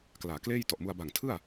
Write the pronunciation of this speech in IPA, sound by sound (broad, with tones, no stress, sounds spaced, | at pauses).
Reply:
k l aː˩˦ k l eː˥˩ j t ɔ˨˩ ʔ m u˧ a̯ b a˨˩ ŋ tʰ ɯ˥˩ a̯